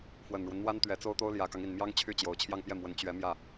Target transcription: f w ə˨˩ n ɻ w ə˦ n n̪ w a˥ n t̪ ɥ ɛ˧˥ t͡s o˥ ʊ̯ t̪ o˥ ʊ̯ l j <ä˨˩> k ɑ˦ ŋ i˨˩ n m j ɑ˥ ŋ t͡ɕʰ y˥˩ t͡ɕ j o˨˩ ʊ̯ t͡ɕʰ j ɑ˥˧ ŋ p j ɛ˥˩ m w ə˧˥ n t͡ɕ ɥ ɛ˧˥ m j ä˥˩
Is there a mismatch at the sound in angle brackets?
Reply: no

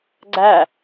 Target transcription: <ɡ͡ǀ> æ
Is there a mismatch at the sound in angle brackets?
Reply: no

